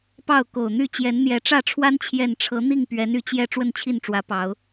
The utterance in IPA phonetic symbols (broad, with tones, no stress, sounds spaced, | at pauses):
p ɑ˥˨ ʊ̯ k o˨˩ ʊ̯ n̪ y˥˨ t͡ɕ j ɛ˨˦ n n̪ j ɛ˨˦ ʈ͡ʂ ä˥˨ ʈ͡ʂʰ w a˦ n t͡ɕʰ j ɛ˥˨ n ʈ͡ʂʰ ɤ˨˦ n̪ i˥˨ ŋ p ɥ ɛ˨˦ n y˨˩ t͡ɕ j ɛ˥˨ ʈ͡ʂ w ə˥˨ n t͡ɕʰ i˥˨ n ʈ͡ʂ w ä˨˦ p ɑ˨˦ ʊ̯